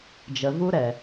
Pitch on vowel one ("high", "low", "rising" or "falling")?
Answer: low